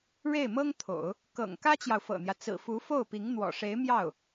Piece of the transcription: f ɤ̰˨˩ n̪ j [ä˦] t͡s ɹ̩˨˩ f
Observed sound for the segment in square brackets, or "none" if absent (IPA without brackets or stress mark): ä˦